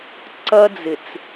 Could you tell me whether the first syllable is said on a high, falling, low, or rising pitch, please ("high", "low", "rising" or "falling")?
high